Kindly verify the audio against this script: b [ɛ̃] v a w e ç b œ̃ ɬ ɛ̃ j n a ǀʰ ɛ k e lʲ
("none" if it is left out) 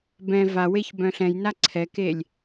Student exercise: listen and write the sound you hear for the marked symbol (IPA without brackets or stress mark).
ɛ̃